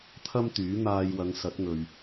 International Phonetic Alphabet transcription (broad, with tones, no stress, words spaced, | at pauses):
t̪ʰɐ˥mt̪yː˨˥n̪aː˧jwɐ˨˧ŋ sɐ˨˥t̚ŋɵ˨ɥ